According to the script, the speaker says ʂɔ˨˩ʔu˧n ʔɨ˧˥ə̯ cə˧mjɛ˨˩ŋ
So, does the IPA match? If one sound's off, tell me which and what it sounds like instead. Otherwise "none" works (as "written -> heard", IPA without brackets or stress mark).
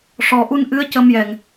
none